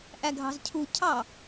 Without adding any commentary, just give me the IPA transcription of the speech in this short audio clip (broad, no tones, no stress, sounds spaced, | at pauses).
ʔ æ ɡʱ ɑ̤ z cʰ u cʰ ɑ